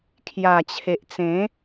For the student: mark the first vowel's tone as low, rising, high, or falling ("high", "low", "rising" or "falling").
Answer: low